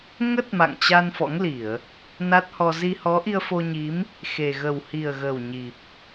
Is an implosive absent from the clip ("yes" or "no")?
yes